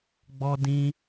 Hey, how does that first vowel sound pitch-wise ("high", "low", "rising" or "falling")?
high